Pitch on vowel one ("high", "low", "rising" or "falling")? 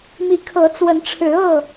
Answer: rising